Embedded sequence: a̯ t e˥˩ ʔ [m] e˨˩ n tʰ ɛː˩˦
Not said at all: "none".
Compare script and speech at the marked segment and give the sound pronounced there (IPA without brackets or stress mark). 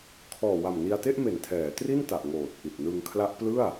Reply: m